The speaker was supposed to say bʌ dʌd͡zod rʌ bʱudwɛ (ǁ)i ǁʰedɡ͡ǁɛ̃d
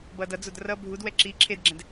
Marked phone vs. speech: correct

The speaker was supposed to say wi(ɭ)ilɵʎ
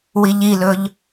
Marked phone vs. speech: incorrect: ʎ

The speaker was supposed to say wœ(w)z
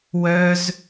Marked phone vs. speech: incorrect: none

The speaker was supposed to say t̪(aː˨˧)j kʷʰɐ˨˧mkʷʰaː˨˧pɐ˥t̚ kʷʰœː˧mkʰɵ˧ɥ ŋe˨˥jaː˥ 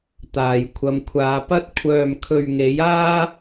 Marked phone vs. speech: incorrect: aː˨˩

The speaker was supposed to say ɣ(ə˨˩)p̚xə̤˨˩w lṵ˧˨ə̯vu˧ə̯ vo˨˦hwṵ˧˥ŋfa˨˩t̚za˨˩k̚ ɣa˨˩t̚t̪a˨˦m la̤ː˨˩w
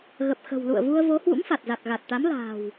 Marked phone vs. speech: correct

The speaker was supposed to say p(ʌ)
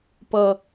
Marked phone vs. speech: correct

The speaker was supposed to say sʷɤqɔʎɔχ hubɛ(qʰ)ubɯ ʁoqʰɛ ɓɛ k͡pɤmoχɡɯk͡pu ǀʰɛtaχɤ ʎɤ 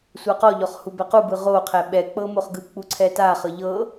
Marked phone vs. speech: incorrect: q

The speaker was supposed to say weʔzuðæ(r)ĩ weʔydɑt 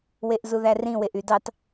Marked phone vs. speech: correct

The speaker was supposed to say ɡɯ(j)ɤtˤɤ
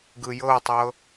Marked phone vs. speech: correct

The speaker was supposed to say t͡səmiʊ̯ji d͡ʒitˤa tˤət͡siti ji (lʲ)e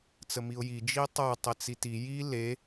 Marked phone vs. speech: incorrect: l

